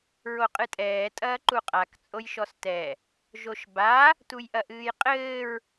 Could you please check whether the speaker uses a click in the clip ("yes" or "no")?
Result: yes